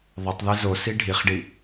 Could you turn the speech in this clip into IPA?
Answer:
ðˤ o tˤ ð e z o s i ɖʱ i χ ɖ i

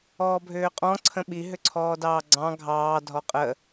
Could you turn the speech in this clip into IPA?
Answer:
ɔː bʱ ʏː qʼ ɔ̃ ǀʰ ə̃ ɓ i ɦ ʏ ǀʰ ɔː d ɑː ɡ͡ǀ ɑ̃ ɡʱ ɑː dʱ ɔ qʼ ə

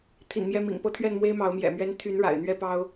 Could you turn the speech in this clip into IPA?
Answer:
t̪ʰ ḭ˨˩ n m j ɛ˥˩ m ḭ˨˩ ŋ p ɤ˥ t̪ʰ ɥ ɛ˥˩ n m w e˥ ɪ̯ m ɑ˧˥ ʊ̯ m j ɛ̰˨˩ m ɥ ɛ˥ n t̪ʰ y˧˥ n ɻ a̰˨˩ ɪ̯ n̪ ɥ ɛ˥ p ɑ˥ ʊ̯

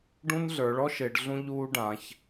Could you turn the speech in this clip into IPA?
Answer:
ɖ ũ˦ n ɮ ə˞˩˧ ɭ ɔ˦ ʃ e˩˧ ɖ ɮ ũ˦ ʎ uː˦ ɖ ã˩˧ ç

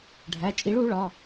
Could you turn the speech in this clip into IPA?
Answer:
ɖʱ æ˩˧˩ t͡ʃʼ i˨˥ ɭ u˨˥ ɭ ɒ˩˧˩

